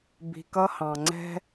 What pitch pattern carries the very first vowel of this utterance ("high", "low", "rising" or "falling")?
low